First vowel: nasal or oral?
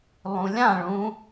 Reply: nasal